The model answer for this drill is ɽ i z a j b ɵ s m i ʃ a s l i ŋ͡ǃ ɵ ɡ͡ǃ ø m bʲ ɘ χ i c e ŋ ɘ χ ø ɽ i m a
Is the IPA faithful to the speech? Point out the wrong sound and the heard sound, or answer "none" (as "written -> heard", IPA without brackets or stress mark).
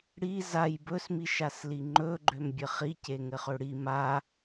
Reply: none